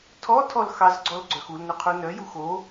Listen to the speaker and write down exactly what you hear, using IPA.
tʰ ɔ tʰ ɔ l x ɑ z ɡ͡ǀ ɔ l ɡ͡ǀ œ x u l n ʏ qʰ u n œ j u x o

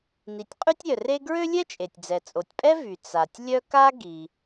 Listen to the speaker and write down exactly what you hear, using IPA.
n i˩ tʲ qʼ y˥ tʲ ɾʲ œ˩ r e˥ ɡ ɹ ø˥ lʲ ɛ˥ t͡ʃʼ e˩ tʲ d͡z ɛ˩ t͡sʼ o˩ tʲ pʼ ɛ˥ v y˩ t͡s a˩ tʲ lʲ œ˥ k a˥ ɡ i˩

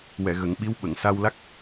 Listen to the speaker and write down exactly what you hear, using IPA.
w ɛ˨˩˨ ɣ ə˨˩˦ ŋ ɓ i˧˥ w ɓ ə˨˩˨ ŋ s a˧ w l a˦˥ k̚

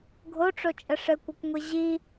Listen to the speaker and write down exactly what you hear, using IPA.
ɡʱ o ʈ͡ʂ o t͡ʃʼ ə ʂ ɘ kʷ ə kʷ ŋʷ i ʑ i

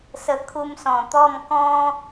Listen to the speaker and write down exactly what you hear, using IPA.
s ə˧ kʰ u˧ m s ɔ̃˨˩ t̪ ɔ˥˧ m k ɔ̃˦

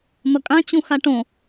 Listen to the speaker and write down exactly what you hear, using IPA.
n̪ ʌ kʼ ã t͡ɕ ũ x a ʈ õ

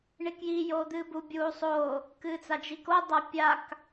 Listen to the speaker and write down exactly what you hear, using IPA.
ɳ i k j i j oː d̪ ɨː b u bʲ uː sˤ oː | k ɨː t͡s a d͡ʒ i k o dˤ a pʲ a k

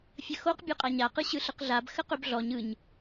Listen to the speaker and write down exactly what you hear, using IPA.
fʲ ə x o q bʲ ø qʼ a ɲ a q ɯ ɕ ɯ ɬ ə q ɮ a b x ə q ø b ɮ ɔ ɲ ɯ ɲ

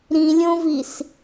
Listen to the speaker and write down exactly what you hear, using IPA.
ɾ ĩ lʲ õ v i s

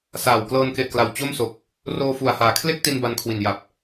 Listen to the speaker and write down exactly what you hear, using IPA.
s aː˨˩ w k l ɤː˧ n k e˨˩ ʔ k l a˩˦ w t͡ɕ o˥˩ m s o˨˩ k̚ | r oː˧ f u˨˩ a̯ h aː˨˩ kʰ l e˥˩ k̚ t i˧ n b a˧ n kʰ w i˨˩ n j a˨˩ p̚

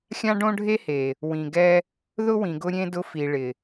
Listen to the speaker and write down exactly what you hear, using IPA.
xʲ ã˦ ɖ õ˦ ɖʱ e˦ h e˨ | w ĩ˨ ɡ ɛ˦ | ð ʊ˦ w ĩ˨ ɡ ʊ˧ ɾʲ ẽ˧ d ʊ˧ f i˨ ɭ ɪ˨

